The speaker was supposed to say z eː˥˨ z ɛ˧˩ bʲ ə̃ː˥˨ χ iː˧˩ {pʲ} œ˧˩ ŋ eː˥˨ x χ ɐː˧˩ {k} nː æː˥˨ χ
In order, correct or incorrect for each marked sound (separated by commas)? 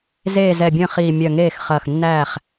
incorrect, incorrect